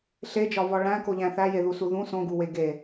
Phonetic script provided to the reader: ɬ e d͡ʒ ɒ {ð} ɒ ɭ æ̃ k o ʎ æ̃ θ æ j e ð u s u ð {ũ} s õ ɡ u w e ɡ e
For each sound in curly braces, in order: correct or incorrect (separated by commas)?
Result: incorrect, correct